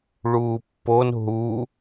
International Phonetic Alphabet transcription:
ɭ uː pː o n ɦ u

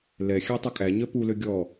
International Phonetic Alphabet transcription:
l ɛ xʲ æ tˤ u kʼ æ ɲ œ p u l ø ɡʲ ɔ

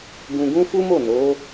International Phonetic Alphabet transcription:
ɡ ũ˧ ɡ ũ˦ f u˦ m o˦˨ n o˨˦

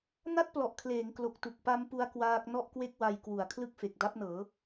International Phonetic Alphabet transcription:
n a˥˩ t̚ p l ɔ˨˩ ʔ kʰ l eː˩˦ ŋ k l o˨˩ k̚ t u˨˩ k̚ p a˦˥ m p u˦˥ a̯ k w aː˦˥ k̚ n ɔ˥˩ ʔ k w e˥˩ k̚ w a˧ j k w u˩˦ a̯ kʰ l ɯ˥˩ k̚ f e˨˩ k̚ d a˦˥ p̚ n ɤː˩˦

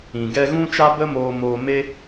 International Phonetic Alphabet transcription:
ĩ˨ ɡ ɛ˦ ɣ ũ˦ t͡ʃ a˦ b ə˦ m oː˧ m oː˧ m e˦

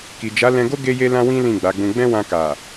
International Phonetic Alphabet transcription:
k i˨ d͡ʒ a˨˦ l ɛ̃˧ ɡ o˦ ɡ e˦ j e˦ l ã˦ w ĩ˦ l ĩ˦˨ ɡ͡b a˨˦ ɡ͡b ũ˧ ɡ͡b ɛ̃˦ w ã˧ k a˨

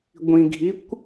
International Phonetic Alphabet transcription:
ɡʷ ĩ ɡʱ i kʷ

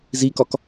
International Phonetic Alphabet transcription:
z i k ɒ k

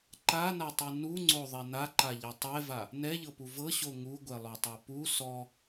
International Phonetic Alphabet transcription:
ǃ a n a tˤ u n u ŋ͡ǀ o ðˤ ɛ n a ǃ a ʎ ɛ tˤ ɛ v a | n ɛ ʎ ɤ p u v ɤ ɕ o ŋ u ɡʷ ɛ lˠ o tˤ ɤ p u s ɔ

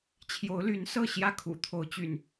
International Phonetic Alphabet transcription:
t͡ɕʰ j o˨˦ ʊ̯ l y˨˦ n s ɤ˥˨ ɕ j ä˥˨ kʰ ṵ˨˩ t̪ʰ o˨˦ ʊ̯ t͡ɕ y̰˨˩ n

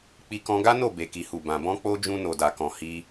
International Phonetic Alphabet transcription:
k͡p i˧ k ɔ̃˧ ɡ a˦ n o˦˨ b e˨ k i˨ h u˨ b ã˨ b ɔ̃˧ k͡p o˧ d͡ʒ ũ˧ n o˨ d a˨ k ɔ̃˨ h i˧

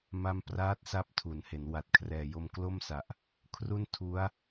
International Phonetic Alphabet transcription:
m a˥˩ m p r aː˦˥ t̚ s a˦˥ p̚ tʰ u˩˦ n h e˩˦ n w a˨˩ t̚ kʰ r ɛː˨˩ j o˧ m k l o˥˩ m s a˨˩ ʔ | kʰ r u˥˩ n tʰ u˦˥ a̯

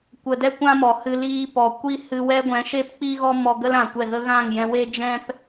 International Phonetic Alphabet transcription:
kʷ ə˧ d ɛ˦ kʷ ã˦ m ɔ˨ h ɨ˧ l iː˧ p ɔ˨ kʷ i˦ h ɨ˧ w ɛ˦ ɡʷ ɛ̃˨˦ ʃ e˦ p k͡p i˦ ɣ ɔ˦ m ɔ˧ ɡ ə˦ l ã˨ kʷ ɛ˦˨ ɣ ə˦ ɣ ã˦˨ ŋ j ɛ̃˧ w e˦ d͡ʒ ɛ̃˦ p

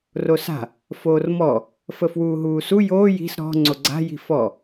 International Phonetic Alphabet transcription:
r o s a̤ | f oː r m ɔ | f ə f w uː ɦ uː s u j oː j i̤ s ɾ ɔ̤ ŋ͡ǀ o ɡ͡ǀ a̤ j i̤ f ɔ

